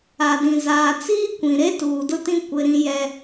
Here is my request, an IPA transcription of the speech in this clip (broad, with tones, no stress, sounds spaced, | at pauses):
a˨ d ĩ˨ z aː˨ t͡s iː˦ kʷ ĩ˨ ɾ e˦ t uː˨ d ʊ˦ t ĩ˦ kʷ ɪ˦ ɾ ĩ˦ j ɛ˦